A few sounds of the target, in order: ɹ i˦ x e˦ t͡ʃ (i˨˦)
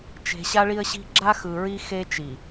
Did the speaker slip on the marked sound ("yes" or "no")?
yes